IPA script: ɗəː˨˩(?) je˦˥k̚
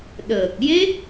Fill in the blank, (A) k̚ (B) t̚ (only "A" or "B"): A